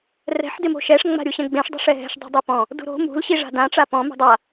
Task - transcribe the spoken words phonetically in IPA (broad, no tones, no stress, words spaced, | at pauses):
rɛ̤ħ dɪmo̤ʃɛʂ ŋ͡ma̤ɾʲuɕɛ̃ɡ͡bẽʂ dˤɛ̤ʂɛɦɛ̤ʃ dˤṳdˤupɔ̃ | dṳɾo̤ mṳl ɕiʐa̤dã ʈ͡ʂapɔ̃ mṳdˤa